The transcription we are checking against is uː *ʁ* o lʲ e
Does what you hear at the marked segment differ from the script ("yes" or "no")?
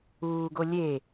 yes